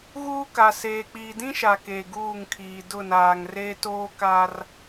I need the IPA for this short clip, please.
ɣuː˦ ka˨ seː˨ k͡piː˨dĩ˦ʃa˨ ke˨ɡuː˦˨ŋkʰiː˨ dʊ˦˨naː˨ŋreː˦ toː˦ka˦r

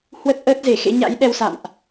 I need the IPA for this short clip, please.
hwə˦˥t̚ʔəː˦˥t̚ze˧˩ xḛ˧˥ɲa̰˧˥jɗɛ˧wsa̰˧˨mʔ

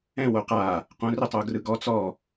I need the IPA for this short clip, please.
ɛ̃ woqa | qõ ritˤoɡrɯɡɔ t͡sɔ

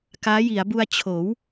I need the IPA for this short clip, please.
kaː˦˥ji˩˦a̯bu˧a̯ t͡ɕʰoː˩˦w

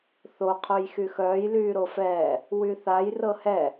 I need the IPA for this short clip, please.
θo qʰojxyxœːj lyːɾofɛː | wyθaj rɤhɛ

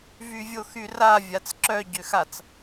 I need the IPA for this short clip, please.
vyvʲoxyra vʲat͡sǁœ ɟøxat͡s

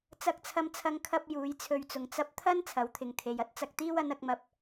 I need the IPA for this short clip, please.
t͡sɐ˧k̚t͡sʰɐ˧mt͡sʰɐ˧ŋ kʰɐ˥p̚ juː˨˥jt͡sʰɵ˧ɥt͡sʊ˨ŋ t͡sɐ˧p̚ t̪ʰɐ˥n t͡sʰɐ˨˥wt̪ʰɪ˨ŋt̪ʰe˨j ɐ˥t̚t͡sɐ˨k̚t̪iː˥w ɐ˨˥nɐ˨˥k̚mɐ˧p̚

